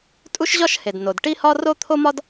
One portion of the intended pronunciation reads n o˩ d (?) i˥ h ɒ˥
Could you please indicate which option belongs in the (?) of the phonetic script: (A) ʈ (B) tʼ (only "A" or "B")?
A